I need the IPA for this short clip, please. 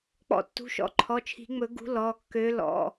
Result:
k͡p ɔ̰˨˥ tː ṳ˩˧˩ ʃ ɔ̰˨˥ ǃʰ ɔ˩˧˩ t͡ʃʰ i̤˨˩˦ ŋ͡m ɵ˨˩˦ ɡ ṳ˨˥ l ɔ˩˧˩ kː ø˨˥ l ɔ̰˩˧˩

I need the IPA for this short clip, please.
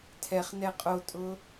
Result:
tʰ ɛ χ n ɛ qʼ o tʼ ʊ

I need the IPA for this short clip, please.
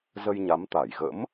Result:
z ə˧ j ɲ a˨˦ m t̪ a˧˩ j ɣ ə̰˧˥ m

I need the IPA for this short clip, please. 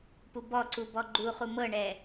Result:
p u b ɔ ǀ u b ɔ ɡ͡ǃ u χ u m ɤ ɳ ɛ

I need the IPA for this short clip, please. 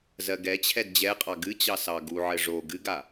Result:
z ɜ ɡ ɛ t͡ɕʰ ɛ d d͡ʑ ɛ qʼ ɑ ɡ ɨ t͡ɕ ɑ s ɑ ɡ u ʕ ɘ ʐ o ɡ ɨ ɡ a

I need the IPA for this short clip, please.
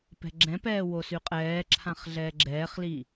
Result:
p ɛ̤ ɡ͡ǁ ɛ̃ p ɛː w o s y qʼ ɛː ǁʰ ã χ ɮ ɛː ɡ͡ǁ ɛː χ l i

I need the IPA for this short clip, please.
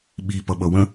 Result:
ɓ i p ʌ ɓ ʌ w ə̃

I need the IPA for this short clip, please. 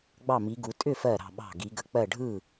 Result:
ɡ͡b ɑ˥˨ m i˨˦ ɡ u˨˦ tʼ ʏ˥˨ f ɜ˧˩ ɾ ɑ̤˧˩ ɓ ɑ̤˧˩ ɡ i˨˦ ɡ ə˨˦ k͡p ɜ˥˨ ɖʱ ɯ˥˨

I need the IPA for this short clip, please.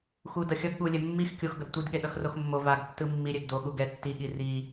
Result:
x u d ʌ xʲ ʌ ɡ ɠ u lʲ ɛ mː i x kʲ o x ɡ ʌ d tʷ i d ɠ e ɗ ʌ x r o x mː o v a ɡ tː ɯ mː i ɾʲ ɛ ɡ d o ɠ u ɡ ɛ tː i ɠ i r i

